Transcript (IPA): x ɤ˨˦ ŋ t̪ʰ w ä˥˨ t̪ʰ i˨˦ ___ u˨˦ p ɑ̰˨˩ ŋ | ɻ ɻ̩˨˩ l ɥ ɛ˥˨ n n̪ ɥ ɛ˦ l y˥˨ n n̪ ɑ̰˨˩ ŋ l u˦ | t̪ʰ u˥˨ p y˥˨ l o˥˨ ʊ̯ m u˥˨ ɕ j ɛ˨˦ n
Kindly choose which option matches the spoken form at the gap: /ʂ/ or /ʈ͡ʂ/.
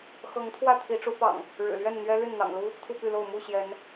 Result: ʈ͡ʂ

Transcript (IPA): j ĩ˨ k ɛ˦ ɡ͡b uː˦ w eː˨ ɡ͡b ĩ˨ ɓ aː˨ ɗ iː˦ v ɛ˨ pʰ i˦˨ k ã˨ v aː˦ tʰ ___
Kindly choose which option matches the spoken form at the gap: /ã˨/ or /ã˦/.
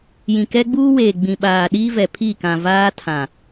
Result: ã˨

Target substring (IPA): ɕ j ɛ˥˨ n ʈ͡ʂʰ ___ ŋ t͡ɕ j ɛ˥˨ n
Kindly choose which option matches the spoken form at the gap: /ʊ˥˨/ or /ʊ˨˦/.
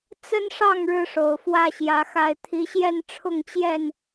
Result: ʊ˥˨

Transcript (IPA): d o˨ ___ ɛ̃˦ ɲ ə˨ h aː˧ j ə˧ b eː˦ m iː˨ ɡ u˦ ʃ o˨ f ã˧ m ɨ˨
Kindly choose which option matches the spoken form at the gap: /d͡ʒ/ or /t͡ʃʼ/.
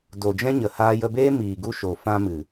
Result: d͡ʒ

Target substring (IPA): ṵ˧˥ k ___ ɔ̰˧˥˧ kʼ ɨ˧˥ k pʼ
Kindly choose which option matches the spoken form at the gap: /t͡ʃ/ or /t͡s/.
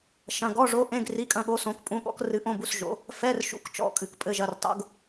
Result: t͡ʃ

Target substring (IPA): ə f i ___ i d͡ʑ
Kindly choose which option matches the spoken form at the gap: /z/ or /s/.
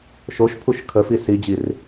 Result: s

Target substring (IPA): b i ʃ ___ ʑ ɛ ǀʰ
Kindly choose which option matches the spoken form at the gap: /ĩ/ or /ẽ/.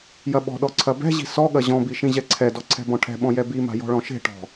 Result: ĩ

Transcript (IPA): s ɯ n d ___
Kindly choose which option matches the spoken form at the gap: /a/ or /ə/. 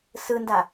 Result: a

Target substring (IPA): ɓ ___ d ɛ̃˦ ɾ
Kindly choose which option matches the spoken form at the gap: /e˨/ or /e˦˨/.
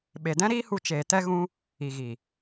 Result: e˨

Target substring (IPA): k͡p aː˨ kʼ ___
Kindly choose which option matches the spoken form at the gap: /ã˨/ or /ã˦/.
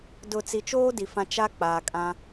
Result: ã˦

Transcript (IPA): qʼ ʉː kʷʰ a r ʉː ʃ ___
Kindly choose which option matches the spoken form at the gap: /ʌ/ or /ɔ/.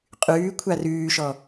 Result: ɔ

